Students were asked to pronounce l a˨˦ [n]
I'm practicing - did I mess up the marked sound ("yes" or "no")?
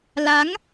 yes